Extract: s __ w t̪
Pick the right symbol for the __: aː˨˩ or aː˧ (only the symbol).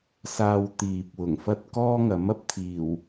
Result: aː˧